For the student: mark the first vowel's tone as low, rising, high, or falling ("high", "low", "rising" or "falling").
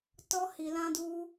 high